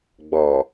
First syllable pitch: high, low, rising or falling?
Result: low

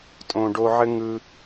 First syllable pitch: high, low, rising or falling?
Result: low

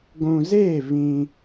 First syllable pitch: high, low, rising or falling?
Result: low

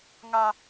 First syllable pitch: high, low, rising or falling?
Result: high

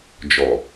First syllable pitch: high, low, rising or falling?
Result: low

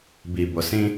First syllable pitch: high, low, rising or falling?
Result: low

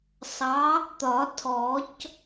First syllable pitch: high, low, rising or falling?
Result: rising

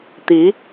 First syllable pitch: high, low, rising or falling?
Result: rising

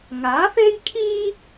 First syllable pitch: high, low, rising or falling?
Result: rising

